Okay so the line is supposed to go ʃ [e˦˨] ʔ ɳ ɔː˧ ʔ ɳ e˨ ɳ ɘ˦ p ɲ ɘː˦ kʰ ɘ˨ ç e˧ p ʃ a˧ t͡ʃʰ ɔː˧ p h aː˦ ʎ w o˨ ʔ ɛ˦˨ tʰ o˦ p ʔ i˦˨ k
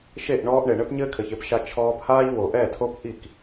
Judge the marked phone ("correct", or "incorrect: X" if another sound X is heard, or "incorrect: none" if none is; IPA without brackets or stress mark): correct